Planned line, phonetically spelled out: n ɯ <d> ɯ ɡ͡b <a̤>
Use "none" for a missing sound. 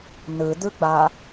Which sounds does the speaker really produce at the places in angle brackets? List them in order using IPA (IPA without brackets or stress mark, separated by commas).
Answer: d, a